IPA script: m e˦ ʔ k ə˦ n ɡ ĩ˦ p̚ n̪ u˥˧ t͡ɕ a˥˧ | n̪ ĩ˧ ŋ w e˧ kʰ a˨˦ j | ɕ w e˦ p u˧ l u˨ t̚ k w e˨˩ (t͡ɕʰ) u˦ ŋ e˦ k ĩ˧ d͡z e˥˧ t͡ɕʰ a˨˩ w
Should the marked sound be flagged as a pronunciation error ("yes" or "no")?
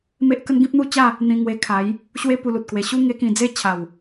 yes